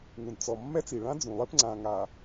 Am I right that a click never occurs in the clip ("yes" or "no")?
no